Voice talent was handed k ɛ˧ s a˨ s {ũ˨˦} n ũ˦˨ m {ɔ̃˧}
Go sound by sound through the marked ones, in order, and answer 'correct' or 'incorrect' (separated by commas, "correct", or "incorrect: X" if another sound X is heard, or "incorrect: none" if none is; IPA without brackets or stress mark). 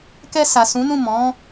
correct, incorrect: ɔ̃˨˦